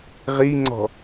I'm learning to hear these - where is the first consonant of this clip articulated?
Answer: uvula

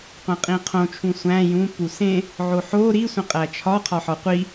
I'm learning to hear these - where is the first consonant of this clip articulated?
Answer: uvula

